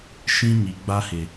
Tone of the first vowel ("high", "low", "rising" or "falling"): high